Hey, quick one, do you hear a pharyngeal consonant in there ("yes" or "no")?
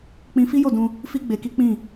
no